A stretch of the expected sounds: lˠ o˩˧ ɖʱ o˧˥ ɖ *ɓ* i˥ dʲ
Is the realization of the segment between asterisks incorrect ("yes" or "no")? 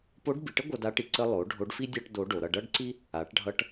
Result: yes